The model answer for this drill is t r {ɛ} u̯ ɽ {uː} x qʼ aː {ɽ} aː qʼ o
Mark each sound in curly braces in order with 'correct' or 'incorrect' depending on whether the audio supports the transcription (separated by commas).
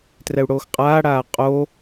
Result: correct, incorrect, correct